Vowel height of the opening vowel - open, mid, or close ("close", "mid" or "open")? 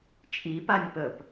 close